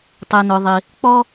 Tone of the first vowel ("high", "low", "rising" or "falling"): low